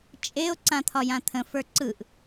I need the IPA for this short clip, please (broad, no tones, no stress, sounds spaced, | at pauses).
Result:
t͡ʃʼ e o̯ ǀ ã t̪ʰ ɒ j ã t̪ʰ ə̃ f ə˞ ǀ ɯ ʔ